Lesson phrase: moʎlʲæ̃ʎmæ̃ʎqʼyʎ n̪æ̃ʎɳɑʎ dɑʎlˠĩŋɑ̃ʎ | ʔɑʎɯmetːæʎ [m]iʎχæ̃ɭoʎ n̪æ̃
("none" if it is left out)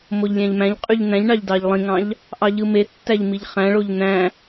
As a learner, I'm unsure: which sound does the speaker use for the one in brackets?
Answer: m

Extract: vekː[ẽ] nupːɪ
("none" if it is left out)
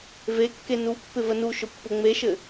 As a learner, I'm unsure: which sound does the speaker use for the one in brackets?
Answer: e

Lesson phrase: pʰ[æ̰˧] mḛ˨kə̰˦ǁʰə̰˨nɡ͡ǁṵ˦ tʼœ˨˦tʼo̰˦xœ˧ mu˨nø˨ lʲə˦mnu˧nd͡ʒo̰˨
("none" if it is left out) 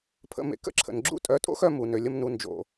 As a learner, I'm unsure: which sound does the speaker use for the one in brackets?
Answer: ə̰˧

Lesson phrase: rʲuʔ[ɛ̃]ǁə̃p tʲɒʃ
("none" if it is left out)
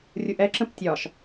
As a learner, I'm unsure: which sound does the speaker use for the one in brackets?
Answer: ɛ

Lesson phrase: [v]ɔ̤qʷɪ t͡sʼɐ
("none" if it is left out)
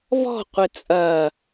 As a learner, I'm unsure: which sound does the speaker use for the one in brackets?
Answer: v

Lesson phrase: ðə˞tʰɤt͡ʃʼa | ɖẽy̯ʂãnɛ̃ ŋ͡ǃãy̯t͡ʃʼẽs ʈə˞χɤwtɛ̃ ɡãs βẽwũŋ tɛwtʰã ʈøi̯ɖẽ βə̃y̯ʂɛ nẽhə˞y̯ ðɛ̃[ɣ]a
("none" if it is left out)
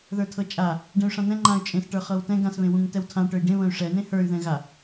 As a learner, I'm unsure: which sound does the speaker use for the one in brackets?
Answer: ɣ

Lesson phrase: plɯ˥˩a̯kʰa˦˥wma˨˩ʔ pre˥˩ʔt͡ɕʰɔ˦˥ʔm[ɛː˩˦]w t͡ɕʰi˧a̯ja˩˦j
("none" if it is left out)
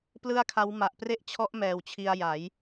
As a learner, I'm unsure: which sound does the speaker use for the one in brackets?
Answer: ɛː˨˩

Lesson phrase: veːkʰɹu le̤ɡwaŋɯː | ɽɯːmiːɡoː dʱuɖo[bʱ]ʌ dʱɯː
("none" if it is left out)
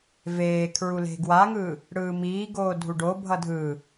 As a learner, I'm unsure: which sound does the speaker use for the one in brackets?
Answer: bʱ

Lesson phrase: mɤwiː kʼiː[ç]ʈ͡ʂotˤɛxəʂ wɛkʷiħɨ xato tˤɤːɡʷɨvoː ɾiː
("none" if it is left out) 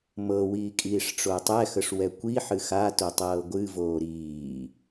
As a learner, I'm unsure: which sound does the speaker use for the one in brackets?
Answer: ʂ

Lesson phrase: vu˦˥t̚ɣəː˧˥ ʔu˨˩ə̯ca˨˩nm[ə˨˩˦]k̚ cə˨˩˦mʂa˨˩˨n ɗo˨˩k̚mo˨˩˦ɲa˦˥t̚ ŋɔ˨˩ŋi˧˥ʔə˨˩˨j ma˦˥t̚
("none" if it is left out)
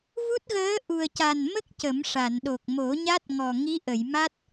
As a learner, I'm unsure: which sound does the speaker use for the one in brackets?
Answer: ə˦˥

